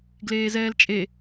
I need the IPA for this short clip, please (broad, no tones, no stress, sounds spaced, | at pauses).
ɡ l eː z ɛː l t͡ʃʼ e